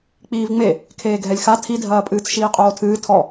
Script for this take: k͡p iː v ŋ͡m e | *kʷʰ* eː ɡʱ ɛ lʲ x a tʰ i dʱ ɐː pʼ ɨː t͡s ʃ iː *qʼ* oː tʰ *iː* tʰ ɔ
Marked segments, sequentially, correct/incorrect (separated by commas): incorrect, correct, incorrect